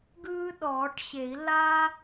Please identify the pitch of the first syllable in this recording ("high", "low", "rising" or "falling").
high